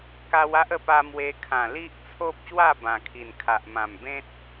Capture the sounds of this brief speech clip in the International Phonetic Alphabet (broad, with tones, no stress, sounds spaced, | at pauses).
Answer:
k a˧ w a˦ ʔ ə˧ p a˧ m w e˧ kʰ ã˨˩ l i˦ ʔ t͡sʰ o˦ p̚ ɕ w a˥˧ b ã˨˩ kʰ i˨˩ n kʰ a˨ ʔ m ã˨˩ m b ẽ˦ t̚